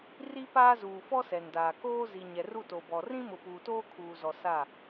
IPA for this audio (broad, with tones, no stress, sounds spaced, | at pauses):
r i˦ p aː˦ z uː˨ f ɔ˦ s ɛ˨ n d aː˨ k oː˦ z i˨ ɲ ɛ˨ r u˦˨ t o˨ b ɔ˨ r ĩ˦ m ʊ˨ p uː˨ t oː˦ kʰ uː˨ z ɔ˨ s a˦˨